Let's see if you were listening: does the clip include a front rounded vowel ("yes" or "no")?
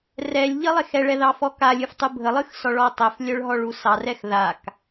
yes